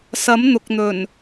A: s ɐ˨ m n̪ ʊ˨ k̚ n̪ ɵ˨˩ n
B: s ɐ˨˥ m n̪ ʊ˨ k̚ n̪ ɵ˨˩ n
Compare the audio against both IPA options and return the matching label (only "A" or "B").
B